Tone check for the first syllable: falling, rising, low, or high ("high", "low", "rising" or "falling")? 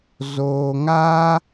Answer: low